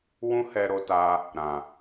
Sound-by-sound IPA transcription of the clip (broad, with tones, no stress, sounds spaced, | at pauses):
w ũ˦ h ɛ˧ ɾ o˧ t a˧ | ɾ ã˨